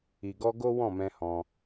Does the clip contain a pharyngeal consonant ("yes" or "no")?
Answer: no